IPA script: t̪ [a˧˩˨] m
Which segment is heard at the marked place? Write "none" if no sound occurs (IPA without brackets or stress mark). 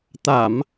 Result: a˧˩˨